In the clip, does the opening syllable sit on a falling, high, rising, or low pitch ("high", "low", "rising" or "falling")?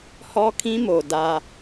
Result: high